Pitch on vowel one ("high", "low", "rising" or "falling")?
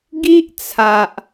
high